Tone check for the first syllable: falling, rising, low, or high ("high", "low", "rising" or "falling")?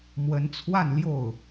rising